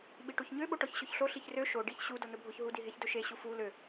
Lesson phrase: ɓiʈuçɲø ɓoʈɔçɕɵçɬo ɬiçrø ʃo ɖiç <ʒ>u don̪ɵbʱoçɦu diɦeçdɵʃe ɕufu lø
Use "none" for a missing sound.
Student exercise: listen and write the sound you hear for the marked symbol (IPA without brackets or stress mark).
ɕ